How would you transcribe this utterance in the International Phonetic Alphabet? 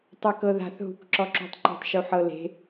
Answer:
tˤakɤða̤θ ɦṳkǁɔǁṳtˤǃṳtˤ ʃuħɤle̤

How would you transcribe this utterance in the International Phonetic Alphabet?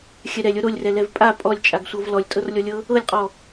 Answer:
xʲɛɾɛlʲɤ ɾolʲrɛ lɛvpʼa pʼɔlʲt͡ʃʼaɡsʷɤv lɔlʲtʼɤrlʲɔlʲɤ | ɤlʲqʼɔ

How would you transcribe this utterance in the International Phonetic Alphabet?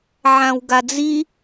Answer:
ʕãwɡad͡zi

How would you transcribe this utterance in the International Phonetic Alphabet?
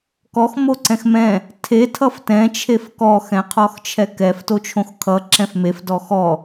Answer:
kɔx moǀɛ̃xmɛ̃ | tʰe tʰʌftɛ̃t͡ʃʰef kɔxɛ̃qʰɔx t͡ʃʰɛkɛf tot͡ʃʰõxkʰʌǁɛ̃f mef dɔxɔ

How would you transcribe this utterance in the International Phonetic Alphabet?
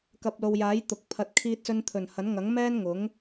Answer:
kɐ˨p̚lo˨wjaː˨˥j t̪ʊ˨˥k̚pʰɐ˧t̚kʰiː˥t̚sɵ˥n t̪ʰɵ˨˩nhɐ˨˥nŋɐ˨˥ŋ mɛː˥nŋʊ˨˥ŋ

